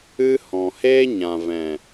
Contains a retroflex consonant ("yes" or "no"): no